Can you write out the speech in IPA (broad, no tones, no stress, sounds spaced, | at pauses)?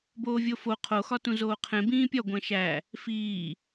b oː vʲ o f o qʰ o x ɒ t ũ z oː qʰ ẽ b ĩː pʲ ɒ ɡʷ æ̃ ʃ æ | f iː